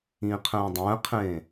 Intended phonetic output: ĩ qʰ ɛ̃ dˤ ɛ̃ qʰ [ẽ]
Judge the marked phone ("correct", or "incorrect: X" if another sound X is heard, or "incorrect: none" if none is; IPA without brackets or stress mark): correct